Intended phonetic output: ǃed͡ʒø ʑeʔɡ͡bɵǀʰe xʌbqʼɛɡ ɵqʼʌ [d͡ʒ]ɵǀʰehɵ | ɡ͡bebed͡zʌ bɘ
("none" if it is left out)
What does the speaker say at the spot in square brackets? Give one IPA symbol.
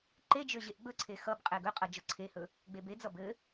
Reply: d͡ʒ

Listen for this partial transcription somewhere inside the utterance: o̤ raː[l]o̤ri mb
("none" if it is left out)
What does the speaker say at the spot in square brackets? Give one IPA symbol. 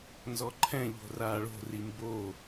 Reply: ɭ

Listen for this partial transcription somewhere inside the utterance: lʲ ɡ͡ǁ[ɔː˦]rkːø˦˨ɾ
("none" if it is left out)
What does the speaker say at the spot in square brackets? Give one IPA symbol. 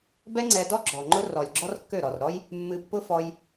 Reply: ɔ˦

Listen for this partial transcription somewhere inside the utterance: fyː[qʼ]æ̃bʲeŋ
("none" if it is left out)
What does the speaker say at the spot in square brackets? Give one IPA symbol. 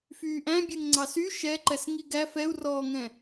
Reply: ʔ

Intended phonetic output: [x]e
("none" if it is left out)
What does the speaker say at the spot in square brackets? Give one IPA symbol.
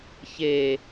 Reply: ç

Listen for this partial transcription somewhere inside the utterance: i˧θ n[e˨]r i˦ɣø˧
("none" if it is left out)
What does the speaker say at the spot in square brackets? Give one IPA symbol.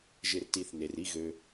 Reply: e˨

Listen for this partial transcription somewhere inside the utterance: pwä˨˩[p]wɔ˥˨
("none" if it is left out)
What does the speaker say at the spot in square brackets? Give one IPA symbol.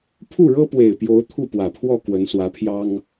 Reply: pʰ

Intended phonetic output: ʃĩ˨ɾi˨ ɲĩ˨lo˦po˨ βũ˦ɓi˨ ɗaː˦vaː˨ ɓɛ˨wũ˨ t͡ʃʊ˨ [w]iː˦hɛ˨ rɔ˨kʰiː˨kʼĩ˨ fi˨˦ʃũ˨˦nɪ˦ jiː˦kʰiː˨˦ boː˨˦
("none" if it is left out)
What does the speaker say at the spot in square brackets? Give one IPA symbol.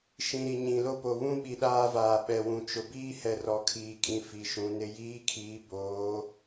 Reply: b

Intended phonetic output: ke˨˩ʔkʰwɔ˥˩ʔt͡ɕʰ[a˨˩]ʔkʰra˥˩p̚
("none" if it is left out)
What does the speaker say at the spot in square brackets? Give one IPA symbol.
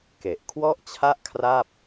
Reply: a˥˩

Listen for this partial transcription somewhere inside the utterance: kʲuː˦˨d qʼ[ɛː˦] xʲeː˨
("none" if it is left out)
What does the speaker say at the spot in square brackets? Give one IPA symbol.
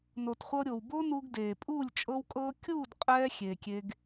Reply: ɛː˦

